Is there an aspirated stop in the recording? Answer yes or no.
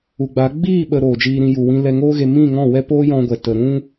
no